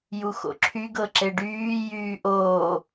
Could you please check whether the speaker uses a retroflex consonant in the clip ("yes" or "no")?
yes